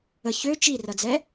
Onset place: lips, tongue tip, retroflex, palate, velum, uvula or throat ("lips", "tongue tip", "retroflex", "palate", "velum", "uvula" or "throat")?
palate